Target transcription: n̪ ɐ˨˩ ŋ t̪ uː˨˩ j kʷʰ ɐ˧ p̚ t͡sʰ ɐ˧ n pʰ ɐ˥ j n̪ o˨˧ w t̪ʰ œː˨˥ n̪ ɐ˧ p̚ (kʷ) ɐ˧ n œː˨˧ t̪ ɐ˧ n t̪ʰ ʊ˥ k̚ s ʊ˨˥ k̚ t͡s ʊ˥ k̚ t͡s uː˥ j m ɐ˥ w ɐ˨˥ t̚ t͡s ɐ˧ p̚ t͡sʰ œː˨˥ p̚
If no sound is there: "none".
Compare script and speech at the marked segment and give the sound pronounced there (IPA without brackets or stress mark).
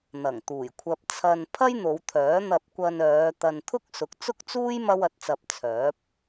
kʷ